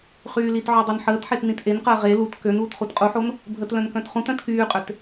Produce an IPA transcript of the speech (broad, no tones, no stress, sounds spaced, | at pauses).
χ yː l i t ʕ o dˤ o n ħ əː t ħ e t n ĩ t ʔ e n q əː ʁ e l u t k ø n uː t χ u t qʼ u ħ o n | bʱ ə t l œ̃ n k œ̃ t χ ũ t œ̃ t k yː qʼ ø t